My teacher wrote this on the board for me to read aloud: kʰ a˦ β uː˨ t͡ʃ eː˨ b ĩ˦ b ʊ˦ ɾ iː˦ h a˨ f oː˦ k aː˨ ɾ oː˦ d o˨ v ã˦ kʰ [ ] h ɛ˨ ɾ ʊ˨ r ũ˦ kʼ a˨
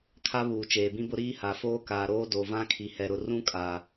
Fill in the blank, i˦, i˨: i˨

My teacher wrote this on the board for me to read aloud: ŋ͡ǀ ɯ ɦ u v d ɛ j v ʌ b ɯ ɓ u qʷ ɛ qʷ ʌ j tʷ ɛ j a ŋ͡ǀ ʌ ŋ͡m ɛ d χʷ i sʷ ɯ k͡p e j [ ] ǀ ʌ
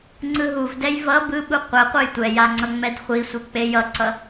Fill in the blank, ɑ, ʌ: ʌ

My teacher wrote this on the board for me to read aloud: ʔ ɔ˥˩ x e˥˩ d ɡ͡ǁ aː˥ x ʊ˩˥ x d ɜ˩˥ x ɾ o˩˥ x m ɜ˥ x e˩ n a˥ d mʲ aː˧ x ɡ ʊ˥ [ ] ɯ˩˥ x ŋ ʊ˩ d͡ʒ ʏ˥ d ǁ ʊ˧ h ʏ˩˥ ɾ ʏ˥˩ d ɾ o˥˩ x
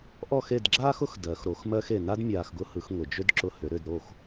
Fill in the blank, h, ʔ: h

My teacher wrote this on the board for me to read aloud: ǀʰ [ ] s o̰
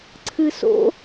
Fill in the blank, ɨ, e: ɨ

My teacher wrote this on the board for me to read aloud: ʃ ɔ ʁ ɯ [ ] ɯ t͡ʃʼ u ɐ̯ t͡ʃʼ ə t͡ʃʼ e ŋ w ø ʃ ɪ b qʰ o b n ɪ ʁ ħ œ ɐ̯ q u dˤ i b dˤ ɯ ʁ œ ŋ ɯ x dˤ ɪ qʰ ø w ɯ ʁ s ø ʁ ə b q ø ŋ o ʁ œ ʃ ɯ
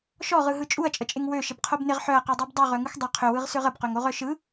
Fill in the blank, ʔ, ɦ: ɦ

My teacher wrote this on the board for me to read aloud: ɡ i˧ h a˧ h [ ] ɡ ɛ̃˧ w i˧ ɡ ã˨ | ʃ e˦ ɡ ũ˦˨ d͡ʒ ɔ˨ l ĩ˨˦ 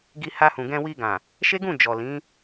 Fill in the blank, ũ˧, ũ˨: ũ˨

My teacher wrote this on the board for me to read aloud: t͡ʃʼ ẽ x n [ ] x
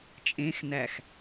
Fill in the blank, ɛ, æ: æ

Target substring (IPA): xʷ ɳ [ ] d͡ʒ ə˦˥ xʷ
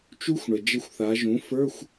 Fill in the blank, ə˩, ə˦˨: ə˩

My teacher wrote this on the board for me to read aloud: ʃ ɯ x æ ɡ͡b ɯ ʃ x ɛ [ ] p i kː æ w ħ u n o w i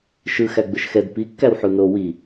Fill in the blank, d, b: d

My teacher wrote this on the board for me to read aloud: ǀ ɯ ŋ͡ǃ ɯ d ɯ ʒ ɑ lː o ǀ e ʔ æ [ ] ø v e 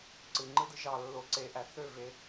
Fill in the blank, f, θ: θ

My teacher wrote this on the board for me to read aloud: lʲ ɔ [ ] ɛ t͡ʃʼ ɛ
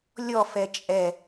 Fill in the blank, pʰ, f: f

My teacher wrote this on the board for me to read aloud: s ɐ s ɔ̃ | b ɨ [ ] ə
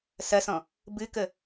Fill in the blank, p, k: k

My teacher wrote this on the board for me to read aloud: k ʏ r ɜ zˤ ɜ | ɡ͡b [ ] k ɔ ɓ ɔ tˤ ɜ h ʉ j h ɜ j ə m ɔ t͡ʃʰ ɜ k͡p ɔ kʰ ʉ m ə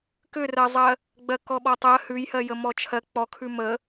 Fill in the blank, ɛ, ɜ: ɜ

